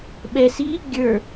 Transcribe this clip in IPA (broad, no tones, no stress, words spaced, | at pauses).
ɓɛ si | ɡʲə˞